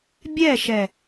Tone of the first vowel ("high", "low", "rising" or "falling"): falling